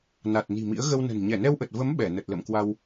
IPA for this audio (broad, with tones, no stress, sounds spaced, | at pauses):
n a˨˩ t̚ n i̤˨˩ m ḭ˧˥ ə̯ ɣ ə˧ w n ə̤˨˩ n ɲ ɛ˧˩ n ɛ˧ w ʔ ə˨˩ t̚ v ə˨˦ m ɓ ɛ˧˩ n ə˨˩ t̚ l ə̰˧˨ m k w a˧ w